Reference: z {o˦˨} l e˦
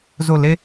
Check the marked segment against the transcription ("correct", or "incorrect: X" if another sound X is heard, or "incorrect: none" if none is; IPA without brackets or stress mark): correct